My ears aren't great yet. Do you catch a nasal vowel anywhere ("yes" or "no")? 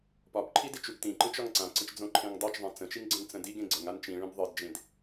yes